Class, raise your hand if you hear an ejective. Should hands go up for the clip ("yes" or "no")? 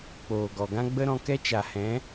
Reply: no